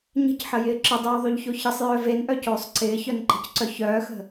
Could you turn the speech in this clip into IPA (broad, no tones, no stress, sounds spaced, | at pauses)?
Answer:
ɲ ə̤ c ħ ə j ɪː ǁ ɪ dˤ yː ðˤ y ʎ ç o ç ə sˤ j œː v e n ʔ œ c oː sˤ ǀ ɪː ç œ n ǃ ə̤ c ǀ œ ç œː x ə̤